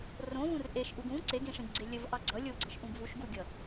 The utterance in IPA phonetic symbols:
rõvũr ʔeʃʔuɡ ũ ǀeɡĩʂĩɡɡ͡ǀe lʲəvʔɑ ɡ͡ǀʌ lʲoɡ͡ǀɤʃʔũɡ vuʃɡuɡʲʌ

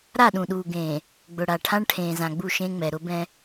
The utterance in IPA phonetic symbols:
ɾa˦˨ɗũ˨ɗuː˨ ɡẽː˨ | ɡ͡bʊ˨ɽa˨ ʈʰã˦ɳʈʰẽː˨zã˨ɡ͡bu˦˨ ʃẽ˦ŋ͡mɛ˨ ɾʊ˦bɛ̃˦

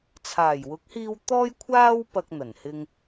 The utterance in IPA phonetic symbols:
t͡sʰaː˨˩jwʊ˨˥k̚hiː˧w t̪ɔː˥j kʷʰaː˥w pɐ˧k̚n̪ɐ˨˩nhɪ˧ŋ

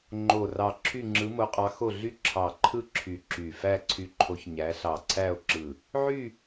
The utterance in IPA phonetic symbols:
ŋ͡ǃo˧˩rɑ˧˩ ǁʰy˥˧ŋ͡ǁɯ˧˥mo˧˥qʼɑ˧˥ xo˧˩ɮy˧˥ ǁʰɑ˧˩ǃʰɯ˥˧ ǁʰy˧˩ǁy˧˩ fæ˥˧ǀʰy˧˥ǃʰo˧˥ç ɲæ˧˥ ɬɑ˧˩ǀʰæ˥˧o̯ǁɯ˧˩ | ʕy˥˧

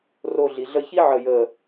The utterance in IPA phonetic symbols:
ro˥˧ ɮi˧ɮə˥ çi˥ ʕə˥˧jəː˥˧

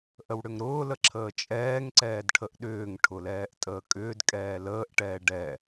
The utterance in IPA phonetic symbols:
ʔəwɽʏŋɾʊːlə ǁʰəːt͡ʃʼɛːŋǀɛːd ʈʰəʔɗʏːŋʈʰʊ lɛːʔtʼəːkʼʏːdkʼɛː ləːʔʈɛː ɖɛ

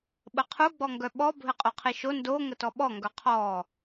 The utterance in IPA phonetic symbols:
ɓəqʰu ɡ͡bɔŋɡœɓɔ bʱɘqʼoqʰiʃo ndo ŋətɔɓɔ ŋɡœqʰɔ

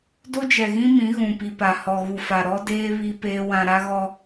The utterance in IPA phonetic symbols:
do˦d͡ʒɛ˨ɣĩ˦mĩ˨˦ ɣũ˨pi˨pa˨ hɔ˨ɣu˨fa˨ ɾɔ˦deː˦ βi˦peː˦ wã˦ ɾa˦ɣɔ˦

